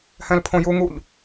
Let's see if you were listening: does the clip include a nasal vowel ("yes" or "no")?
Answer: yes